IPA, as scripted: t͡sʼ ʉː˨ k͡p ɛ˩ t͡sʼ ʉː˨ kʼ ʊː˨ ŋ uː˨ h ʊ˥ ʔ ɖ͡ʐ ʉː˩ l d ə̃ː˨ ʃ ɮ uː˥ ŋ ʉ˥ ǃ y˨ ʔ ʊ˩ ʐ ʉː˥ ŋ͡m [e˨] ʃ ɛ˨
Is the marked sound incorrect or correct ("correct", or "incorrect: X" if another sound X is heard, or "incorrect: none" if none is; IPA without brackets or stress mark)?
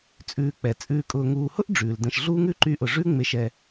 correct